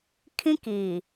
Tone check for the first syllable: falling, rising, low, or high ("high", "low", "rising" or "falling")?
high